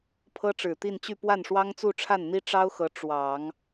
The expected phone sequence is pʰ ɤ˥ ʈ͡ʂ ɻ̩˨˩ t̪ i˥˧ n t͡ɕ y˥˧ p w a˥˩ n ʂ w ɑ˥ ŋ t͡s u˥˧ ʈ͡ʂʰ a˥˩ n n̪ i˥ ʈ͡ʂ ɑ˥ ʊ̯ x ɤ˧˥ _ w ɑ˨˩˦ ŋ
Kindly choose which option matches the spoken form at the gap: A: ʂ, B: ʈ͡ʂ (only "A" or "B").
B